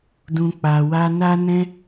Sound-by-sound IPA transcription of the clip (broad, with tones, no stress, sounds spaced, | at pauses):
d ũ˨ k͡p a˨ w a˧ n a˧ n ɛ̃˧